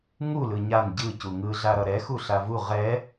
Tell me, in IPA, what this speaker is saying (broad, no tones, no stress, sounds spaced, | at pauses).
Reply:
ŋ u l ɯ ɲ a n ɟ ɯ c u ŋ ɯ ɮ a ɾ ʌ ɾ ɛ x u ɬ a v u ʁ ɛ